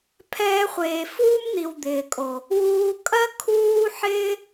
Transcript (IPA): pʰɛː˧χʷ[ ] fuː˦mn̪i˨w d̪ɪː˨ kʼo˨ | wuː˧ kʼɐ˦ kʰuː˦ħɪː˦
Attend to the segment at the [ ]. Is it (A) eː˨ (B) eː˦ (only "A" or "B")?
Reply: A